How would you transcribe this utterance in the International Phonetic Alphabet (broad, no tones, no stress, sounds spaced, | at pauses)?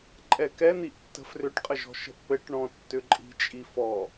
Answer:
ǃʼ ɛ k ɛ n̪ i ʔ tː ə̤ f r ʏ ʈ qʼ ə ʒ ɔ̤ ʃ ə̤ ʔ p ɘ ʈ ɳ ɔ̃ tː ʏ ǃʼ i̤ t͡ʃʼ i f ɔ